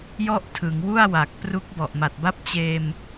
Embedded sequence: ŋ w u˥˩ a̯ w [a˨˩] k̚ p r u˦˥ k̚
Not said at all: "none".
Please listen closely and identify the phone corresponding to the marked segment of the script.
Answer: a˨˩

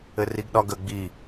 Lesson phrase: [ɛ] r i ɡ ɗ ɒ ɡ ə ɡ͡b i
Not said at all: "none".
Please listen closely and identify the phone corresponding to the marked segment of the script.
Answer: ɘ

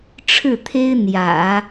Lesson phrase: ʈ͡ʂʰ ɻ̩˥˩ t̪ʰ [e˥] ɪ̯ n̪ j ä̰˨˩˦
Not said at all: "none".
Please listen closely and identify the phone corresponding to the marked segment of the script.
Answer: e˥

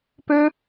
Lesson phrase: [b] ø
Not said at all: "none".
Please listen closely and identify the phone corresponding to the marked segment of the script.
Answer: p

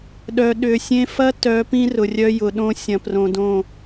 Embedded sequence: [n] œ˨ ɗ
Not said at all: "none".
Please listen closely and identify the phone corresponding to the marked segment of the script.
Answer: ɗ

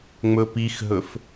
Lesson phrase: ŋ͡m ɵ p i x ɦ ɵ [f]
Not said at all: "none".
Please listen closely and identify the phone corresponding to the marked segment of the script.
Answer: f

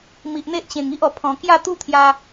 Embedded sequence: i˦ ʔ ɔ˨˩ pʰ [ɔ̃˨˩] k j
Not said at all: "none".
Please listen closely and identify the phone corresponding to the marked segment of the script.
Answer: ɔ̃˨˩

